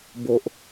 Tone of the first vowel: low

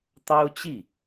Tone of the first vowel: high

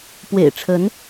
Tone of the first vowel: low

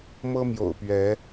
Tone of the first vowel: high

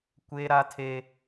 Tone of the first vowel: high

